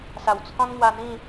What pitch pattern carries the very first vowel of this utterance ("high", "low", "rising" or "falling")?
low